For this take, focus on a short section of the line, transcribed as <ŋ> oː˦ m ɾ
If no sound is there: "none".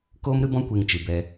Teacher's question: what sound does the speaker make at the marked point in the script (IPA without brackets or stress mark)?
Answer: k